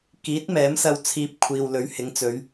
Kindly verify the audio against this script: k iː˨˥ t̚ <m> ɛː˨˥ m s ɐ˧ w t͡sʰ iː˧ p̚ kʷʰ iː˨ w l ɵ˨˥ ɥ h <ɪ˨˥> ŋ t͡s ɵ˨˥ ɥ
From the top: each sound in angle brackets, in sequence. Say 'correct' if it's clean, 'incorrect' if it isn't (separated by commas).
correct, correct